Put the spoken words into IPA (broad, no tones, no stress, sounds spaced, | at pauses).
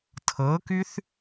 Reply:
tʰ ɤ k y θ